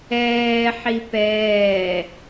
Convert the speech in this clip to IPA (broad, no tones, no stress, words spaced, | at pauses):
ɛː ħipɛː